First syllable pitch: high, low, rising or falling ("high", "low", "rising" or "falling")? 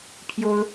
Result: high